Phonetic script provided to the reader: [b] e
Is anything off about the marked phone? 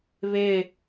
yes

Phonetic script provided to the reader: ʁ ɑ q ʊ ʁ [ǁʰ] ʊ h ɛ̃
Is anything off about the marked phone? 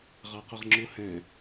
yes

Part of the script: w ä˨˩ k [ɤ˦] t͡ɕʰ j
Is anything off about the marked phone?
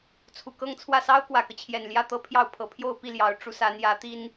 no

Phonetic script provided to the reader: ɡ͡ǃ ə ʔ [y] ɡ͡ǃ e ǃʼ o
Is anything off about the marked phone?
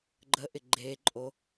yes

